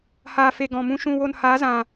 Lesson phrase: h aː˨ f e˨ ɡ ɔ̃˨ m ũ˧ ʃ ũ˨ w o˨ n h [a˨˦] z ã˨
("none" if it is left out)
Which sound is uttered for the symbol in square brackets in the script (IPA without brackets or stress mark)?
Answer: aː˨˦